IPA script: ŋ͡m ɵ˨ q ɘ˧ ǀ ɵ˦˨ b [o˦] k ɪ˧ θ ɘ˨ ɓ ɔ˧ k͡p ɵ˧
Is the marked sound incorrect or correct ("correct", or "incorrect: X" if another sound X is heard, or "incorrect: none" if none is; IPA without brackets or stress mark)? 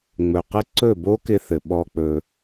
correct